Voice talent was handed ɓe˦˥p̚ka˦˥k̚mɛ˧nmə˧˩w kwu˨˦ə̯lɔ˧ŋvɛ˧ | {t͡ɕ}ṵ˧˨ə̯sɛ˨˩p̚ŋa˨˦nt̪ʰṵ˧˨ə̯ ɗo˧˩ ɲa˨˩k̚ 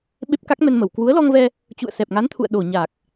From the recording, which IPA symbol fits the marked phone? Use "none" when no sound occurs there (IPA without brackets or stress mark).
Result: t͡ɕ